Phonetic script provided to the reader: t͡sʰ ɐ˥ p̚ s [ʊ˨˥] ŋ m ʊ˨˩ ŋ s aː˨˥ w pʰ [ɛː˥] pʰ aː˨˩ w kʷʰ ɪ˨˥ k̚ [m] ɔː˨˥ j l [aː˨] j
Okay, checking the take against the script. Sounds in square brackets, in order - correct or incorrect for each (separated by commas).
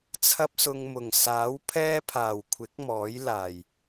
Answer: incorrect, correct, correct, incorrect